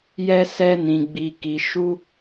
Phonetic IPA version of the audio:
j ɛ˧ s ɛ˧ n ĩ˨ ɡ͡b i˨ k i˨ ʃ u˧

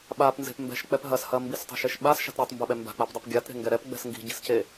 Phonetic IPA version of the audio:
ɓ a p n z e̤ p m b ɛ̤ ʃ k͡p ɛ p ɦ ɐ s h ɐ m b i s tˤ e̤ ʃ e ʃ ɓ a s ʃ a̤ t ɾʲ e tˤ m b ɐ ɓ ɛ m b a̤ k͡p a p dˤ i p ɡʲ a t ɾ e̤ ŋ ɡ ɛ ɾ ɛ p ɡ͡b ɛ̤ s ŋ ɡ i̤ ɟ i̤ s c e

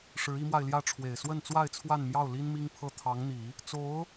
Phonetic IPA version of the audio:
ʂ ɻ̩˧˥ i˧˥ m w a˧ ɪ̯ l j ä˥˩ ʈ͡ʂʰ w e˨˩ ɪ̯ s w ə˥˧ n t͡s w a˥˧ ɪ̯ t͡sʰ w a˥˧ n m j ɑ˥˩ ʊ̯ l i˥ n m i˥ ŋ pʰ ɤ˥˩ t̪ʰ ɑ˧˥ ŋ n̪ i˨˩˦ | t͡s o˧˥ ʊ̯

